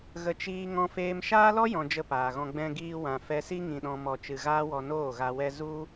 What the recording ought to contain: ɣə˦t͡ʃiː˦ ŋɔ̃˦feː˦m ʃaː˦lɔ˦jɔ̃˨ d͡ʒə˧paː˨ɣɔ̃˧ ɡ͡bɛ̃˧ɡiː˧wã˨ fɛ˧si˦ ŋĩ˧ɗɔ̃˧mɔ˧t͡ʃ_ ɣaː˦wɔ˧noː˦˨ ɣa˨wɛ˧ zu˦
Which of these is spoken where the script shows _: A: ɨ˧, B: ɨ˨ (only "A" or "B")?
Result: A